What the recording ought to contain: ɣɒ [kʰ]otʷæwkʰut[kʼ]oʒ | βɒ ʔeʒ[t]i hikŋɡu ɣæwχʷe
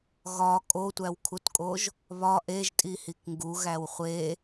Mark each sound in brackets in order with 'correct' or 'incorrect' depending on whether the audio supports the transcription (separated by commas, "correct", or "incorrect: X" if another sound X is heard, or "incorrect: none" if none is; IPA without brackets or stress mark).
incorrect: kʼ, correct, incorrect: tʼ